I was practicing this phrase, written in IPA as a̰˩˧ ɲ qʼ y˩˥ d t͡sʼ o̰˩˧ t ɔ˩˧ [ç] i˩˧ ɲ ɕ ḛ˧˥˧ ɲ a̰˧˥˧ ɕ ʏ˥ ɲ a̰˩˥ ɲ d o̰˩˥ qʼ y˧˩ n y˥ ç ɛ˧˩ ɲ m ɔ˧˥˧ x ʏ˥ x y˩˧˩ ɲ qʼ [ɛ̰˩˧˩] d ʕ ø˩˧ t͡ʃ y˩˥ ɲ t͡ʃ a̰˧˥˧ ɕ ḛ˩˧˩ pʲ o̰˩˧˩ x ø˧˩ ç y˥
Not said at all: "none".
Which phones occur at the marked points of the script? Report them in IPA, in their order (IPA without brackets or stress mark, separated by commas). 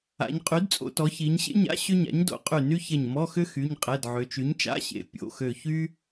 ç, ɛ˩˧˩